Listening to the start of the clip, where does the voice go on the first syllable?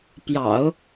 low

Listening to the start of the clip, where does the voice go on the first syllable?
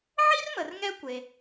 high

